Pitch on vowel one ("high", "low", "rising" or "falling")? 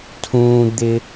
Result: high